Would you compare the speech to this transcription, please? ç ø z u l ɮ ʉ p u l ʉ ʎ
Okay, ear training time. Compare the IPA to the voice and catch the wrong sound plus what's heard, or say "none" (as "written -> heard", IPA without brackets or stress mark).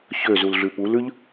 none